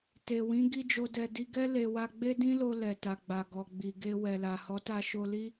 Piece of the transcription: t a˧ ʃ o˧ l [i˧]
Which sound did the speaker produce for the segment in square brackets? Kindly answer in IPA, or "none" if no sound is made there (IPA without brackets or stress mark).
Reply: i˦